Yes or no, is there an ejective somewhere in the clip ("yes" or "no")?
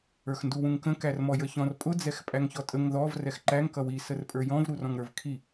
yes